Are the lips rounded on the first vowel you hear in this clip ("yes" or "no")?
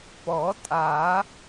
yes